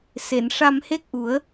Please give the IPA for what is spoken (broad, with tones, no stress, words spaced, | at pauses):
se˨˩˨n ʂa˧mhe˦˥k̚ʔu˨˩˦ə̯